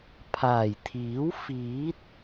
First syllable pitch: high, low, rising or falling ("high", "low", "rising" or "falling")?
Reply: low